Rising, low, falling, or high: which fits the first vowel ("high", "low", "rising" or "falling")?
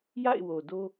falling